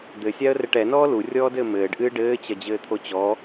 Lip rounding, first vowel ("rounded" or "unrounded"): unrounded